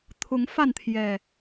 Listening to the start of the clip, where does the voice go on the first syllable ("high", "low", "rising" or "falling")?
rising